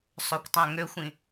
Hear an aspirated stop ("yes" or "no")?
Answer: no